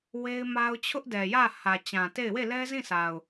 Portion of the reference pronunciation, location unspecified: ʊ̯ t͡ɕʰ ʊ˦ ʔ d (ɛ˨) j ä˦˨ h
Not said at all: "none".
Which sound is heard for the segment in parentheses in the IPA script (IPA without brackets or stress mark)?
ɛ˨